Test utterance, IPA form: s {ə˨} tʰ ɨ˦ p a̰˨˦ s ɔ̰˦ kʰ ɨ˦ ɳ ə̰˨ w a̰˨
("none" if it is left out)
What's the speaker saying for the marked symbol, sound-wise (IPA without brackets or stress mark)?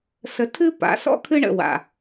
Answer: ə˨